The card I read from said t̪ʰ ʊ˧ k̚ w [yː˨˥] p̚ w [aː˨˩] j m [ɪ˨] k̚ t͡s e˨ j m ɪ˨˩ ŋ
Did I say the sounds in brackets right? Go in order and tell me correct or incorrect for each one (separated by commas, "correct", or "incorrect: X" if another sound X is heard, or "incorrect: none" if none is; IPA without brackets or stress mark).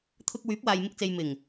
correct, incorrect: aː˨, incorrect: ɪ˧